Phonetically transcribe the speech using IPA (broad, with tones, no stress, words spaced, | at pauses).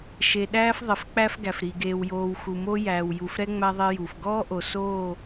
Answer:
ʃe˨ɗæː˦f ðˤe˨f k͡pæ˦fɡæ˨fɾi˨ ɡeː˨wjoː˨w xu˨ mo˦ jæː˨wju˨f ɾɛ˦ ŋ͡mæ˦ðˤe˦ju˨f ɡɔː˦ʔo˨soː˦˨